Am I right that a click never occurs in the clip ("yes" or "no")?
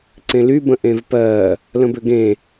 no